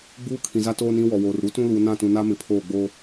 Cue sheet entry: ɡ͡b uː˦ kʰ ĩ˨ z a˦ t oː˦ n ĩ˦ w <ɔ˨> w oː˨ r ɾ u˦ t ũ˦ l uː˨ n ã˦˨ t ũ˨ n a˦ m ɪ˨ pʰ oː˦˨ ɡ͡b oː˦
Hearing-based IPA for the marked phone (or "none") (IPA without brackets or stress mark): ɔ˨